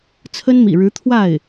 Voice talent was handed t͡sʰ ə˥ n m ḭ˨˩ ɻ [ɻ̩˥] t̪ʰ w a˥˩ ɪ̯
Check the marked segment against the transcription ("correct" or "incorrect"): incorrect